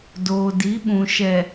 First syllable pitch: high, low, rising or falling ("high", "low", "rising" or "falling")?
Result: low